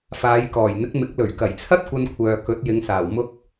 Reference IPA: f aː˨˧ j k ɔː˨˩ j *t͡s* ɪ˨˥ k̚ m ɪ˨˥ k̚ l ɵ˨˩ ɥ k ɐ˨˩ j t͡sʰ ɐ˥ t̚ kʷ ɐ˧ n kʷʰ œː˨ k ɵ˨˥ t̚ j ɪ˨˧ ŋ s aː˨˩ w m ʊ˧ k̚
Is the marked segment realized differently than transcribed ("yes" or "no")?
yes